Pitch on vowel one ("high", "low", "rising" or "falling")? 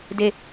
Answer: low